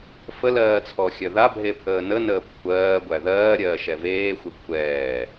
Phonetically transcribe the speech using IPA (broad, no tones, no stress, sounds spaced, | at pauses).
f ə l ɜː t͡sʰ ɔ xʲ œ ð a bʱ e pʰ əː n ə n əː p kʷʰ ɜː ɡʷ æ ð ɜː ɾʲ ɜː ʃ ɛ v eː xʷ e kʷʰ ɛː